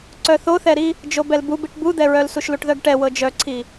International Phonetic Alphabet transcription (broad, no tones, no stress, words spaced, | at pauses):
ǀœθoθɛɾi | d͡ʒobɛlbubiʈ bud̪ɛɹœlsuʃ luʈðœɡʈɛ wɤd͡ʒœǀʰi